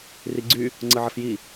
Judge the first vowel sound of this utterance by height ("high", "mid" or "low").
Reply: high